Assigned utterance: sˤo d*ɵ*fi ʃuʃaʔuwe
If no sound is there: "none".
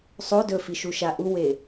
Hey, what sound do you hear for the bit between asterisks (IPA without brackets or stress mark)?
ɵ